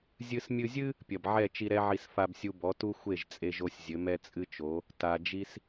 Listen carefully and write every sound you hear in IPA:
zʲ ɨ˧ s mʲ ɨ˧ zʲ ɨ˥ | pʲ ɐ˩ b ʕ ɛ˥˩ t͡ʃ i˧ ɾ ɛ˥ ʕ i˧ s f a˧ b sʲ u˧ b ɔ˩˥ t u˥ xʷ e˥˩ ʒ t͡sʼ e˧ ʒ o˧ sʲ zʲ ɘ˩˥ m ɛ˥ t͡sʼ ɨ˥ t͡ʃ o˩˥ | t a˧ d͡ʒ i˥ s

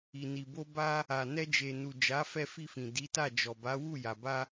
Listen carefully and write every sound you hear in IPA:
i˨ n i˨ b o˧ b a˧ | a˨ n ɛ˧ d͡ʒ e˨ n u˨ d͡ʒ a˨˦ f ɛ˧ f i˧ f ĩ˨ d i˨˦ t a˦˨ d͡ʒ ɔ˨ b a˨˦ w u˦˨ j a˨ b a˧

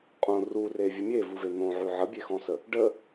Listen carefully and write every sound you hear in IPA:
qʼ õ r u r e vʲ ə mʲ e v u v e n̪ õ ʕ ʉ ʕ ə bʲ e x ɔ̃ s ə | ɖ ə

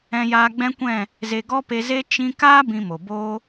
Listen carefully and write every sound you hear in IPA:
ɛ̃˧ j aː˧ ɡ͡b ɛ̃˦ kʷ ɛ̃˦˨ | z e˧ ɡ ɔ˦ p e˧ z e˦ t͡ʃ ĩ˧ k aː˦ b ĩ˧ m o˨ b oː˧

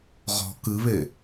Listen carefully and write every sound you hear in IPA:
ʁ ɔ̤ k ɨ β e

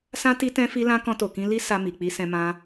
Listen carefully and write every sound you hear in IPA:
s ã˦ t i˧ t ɛ̃˧ f i˧ l ã˧ k ɔ̃˧ t o˨ k ĩ˧ l i˦ s a˧ m i˨ k͡p i˧ s ɛ̃˧ m ã˧

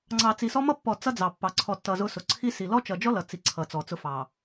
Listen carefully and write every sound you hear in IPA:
ŋ͡ǀ ɑ˨ t͡s i˨ s ɔ˦ m ʌ˦ pː ɔ˨ t͡s ʌ˦ d͡z ɑ˨ pː ɑ˨ ǀʰ ɔ˨ tː ʌ˨ z ʊ˦ s ʊ˨ ǀʰ i˦ s i˨ l ɔ˦ t͡ʃ ʌ˨ d͡ʒ ɔ˦ l ʌ˨ t͡s i˨ ǀʰ ʌ˨ t͡s ɔ˨ t͡s ʊ˦ f ɑ˨

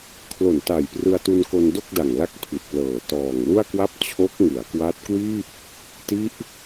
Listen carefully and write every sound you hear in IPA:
kʰ l o˨˩ n t a˨˩ j p r ɯ˧ a̯ t u˧ n k o˧ n d o˥˩ k̚ d a˨˩ ŋ l a˦˥ k̚ pʰ i˨˩ t̚ p l ɤː˨˩ t ɔː˨˩ ŋ l u˥˩ a̯ k w a˥˩ p̚ t͡ɕʰ o˦˥ k̚ ŋ ɯ˩˦ a̯ k w a˦˥ t̚ k w iː˥˩ p̚ | t i˦˥ ʔ

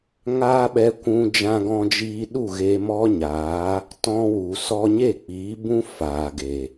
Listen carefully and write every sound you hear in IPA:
ŋ aː˦ ɓ ɛ˧ kʷ ũ˧ d͡ʒ ã˧ ɡ ɔ̃˧ d͡ʒ iː˧ ɗ u˦˨ ɣ e˧ m ɔ˦ ɲ aː˨˦ | t ɔ̃˧ w u˨ s ɔ˧ ɲ e˦˨ k͡p iː˨˦ b ũ˦ f aː˨ ɡ e˨

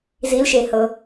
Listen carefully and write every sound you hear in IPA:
z i l ʃ e h ɤ

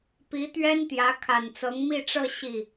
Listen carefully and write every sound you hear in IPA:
p i˧˥ t̪ ɥ ɛ˥ n t̪ j ä˧˥ kʰ a˨˩ n t͡s ɤ˧˥ ŋ m i˥˧ ʈ͡ʂ ɤ˥˧ ɕ i˥˩

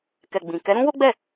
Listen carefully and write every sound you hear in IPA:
k ɛ˨ ɡ͡b ĩ˨ k ɛ˨˦ ɾ ũ˦ w o˦ ɡ͡b ɛ˦˨

